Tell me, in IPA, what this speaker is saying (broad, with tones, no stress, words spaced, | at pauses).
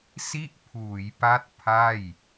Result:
si˥˩ʔpʰuː˩˦jpa˦˥t̚ pʰa˥˩j